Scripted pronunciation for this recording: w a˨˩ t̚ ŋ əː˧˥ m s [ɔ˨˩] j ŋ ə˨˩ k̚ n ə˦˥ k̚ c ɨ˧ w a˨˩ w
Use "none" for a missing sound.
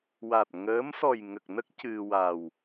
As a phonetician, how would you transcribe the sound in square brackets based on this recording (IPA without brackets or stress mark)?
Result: ɔ˨˩